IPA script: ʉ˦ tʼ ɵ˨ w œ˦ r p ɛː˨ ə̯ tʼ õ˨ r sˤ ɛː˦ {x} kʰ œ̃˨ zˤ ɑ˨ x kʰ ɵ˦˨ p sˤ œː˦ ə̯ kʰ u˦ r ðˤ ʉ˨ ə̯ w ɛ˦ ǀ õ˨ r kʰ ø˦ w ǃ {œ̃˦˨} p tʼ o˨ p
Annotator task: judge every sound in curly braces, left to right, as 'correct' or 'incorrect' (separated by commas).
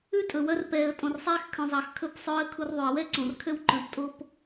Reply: correct, incorrect